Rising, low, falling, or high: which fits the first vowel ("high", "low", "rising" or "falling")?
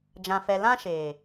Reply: low